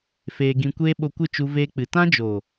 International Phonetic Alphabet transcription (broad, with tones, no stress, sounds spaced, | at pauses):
f eː˧ ɡ ĩ˧ kʷ eː˦ ɓ o˧ kʷ ɨ˦˨ t͡ʃ u˧ v eː˧ k͡p ɨ˨ t ã˦ d͡ʒ o˨